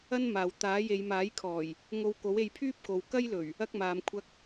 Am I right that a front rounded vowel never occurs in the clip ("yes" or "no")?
no